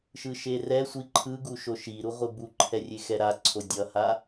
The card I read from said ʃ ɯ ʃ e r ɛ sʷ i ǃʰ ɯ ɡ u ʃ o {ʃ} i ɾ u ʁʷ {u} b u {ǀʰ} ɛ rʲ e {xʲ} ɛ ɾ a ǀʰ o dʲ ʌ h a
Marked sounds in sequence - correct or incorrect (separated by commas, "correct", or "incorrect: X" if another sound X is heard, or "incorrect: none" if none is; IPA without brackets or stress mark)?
correct, incorrect: ɯ, incorrect: ǃʰ, incorrect: x